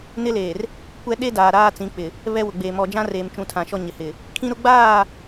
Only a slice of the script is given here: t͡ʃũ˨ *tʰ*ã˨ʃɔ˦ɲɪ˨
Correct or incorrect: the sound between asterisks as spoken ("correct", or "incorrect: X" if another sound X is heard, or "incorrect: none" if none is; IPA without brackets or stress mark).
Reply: correct